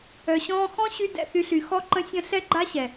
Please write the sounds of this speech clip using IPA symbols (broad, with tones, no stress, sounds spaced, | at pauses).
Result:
œ˨ ɕ ɔ̃ː˧ x ɔ̃˦ ɕ y˧ d ɛ̰˦˨ θ y˧ ɬ y˨ x ɔ˧ ǃ ə̃˧ sʲ ə̃˧ ɬ ɛ˦ ɡ͡ǃ a˦ ɕ ɛ˨